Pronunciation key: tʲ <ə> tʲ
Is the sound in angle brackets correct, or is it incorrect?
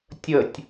correct